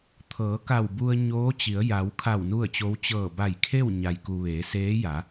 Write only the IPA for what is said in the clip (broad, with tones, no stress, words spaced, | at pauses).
t̪ʰɤː˩˧ka˧˩w bu˧ə̯ɲoː˧˥t͡ɕi˩˧ə̯ ja˩˧wkʰa˧˩w nu˥˨ə̯t͡ɕo˧˥w t͡ɕɤː˧˩ba˧˩jkʰe˥˨w ɲa˩jku˩ ʋeː˩˧seː˧˥ ja˩˧